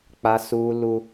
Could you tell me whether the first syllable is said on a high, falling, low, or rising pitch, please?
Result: high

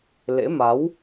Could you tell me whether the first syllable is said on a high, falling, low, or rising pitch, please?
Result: rising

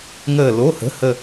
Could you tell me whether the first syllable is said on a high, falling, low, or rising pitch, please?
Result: falling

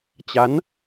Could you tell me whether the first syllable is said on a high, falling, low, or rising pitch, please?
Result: rising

